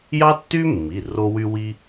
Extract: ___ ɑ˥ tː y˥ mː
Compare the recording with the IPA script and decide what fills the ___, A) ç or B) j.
B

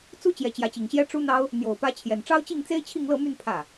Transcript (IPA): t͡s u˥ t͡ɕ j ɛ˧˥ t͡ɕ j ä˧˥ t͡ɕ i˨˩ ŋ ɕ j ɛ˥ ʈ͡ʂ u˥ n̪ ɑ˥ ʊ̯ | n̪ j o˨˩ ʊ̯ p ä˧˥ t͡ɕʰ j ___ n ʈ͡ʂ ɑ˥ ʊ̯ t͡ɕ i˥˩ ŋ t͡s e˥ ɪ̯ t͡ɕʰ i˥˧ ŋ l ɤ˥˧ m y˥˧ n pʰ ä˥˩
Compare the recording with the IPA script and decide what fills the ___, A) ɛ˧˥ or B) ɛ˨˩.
B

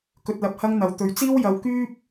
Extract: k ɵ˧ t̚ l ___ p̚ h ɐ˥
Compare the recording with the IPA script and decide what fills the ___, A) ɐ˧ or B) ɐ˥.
A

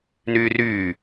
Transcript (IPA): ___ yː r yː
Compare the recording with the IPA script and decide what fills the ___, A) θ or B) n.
B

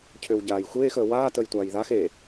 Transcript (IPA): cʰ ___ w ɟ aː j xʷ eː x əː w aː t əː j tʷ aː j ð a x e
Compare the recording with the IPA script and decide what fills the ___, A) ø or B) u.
A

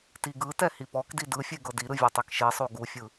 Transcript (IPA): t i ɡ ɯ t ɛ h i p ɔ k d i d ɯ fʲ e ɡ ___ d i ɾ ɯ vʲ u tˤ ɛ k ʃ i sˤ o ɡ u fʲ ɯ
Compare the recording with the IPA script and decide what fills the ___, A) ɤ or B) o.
A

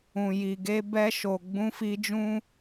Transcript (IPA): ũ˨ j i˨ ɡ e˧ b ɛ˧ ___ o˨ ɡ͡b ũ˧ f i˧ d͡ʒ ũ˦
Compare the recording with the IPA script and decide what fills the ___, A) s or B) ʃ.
B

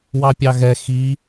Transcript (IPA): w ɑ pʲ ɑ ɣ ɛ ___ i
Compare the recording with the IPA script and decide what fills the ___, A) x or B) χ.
A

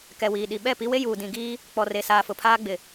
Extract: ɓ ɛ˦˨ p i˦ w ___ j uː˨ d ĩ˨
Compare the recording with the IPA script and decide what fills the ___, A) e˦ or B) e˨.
A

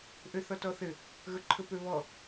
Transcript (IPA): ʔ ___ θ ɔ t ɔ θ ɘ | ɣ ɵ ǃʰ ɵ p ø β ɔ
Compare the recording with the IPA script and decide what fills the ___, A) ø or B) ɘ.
A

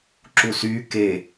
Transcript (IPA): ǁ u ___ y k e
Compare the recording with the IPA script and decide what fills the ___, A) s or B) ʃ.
A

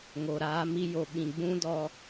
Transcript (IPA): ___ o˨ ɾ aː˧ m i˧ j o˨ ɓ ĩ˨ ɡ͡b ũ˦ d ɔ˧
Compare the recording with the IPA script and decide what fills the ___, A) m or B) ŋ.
B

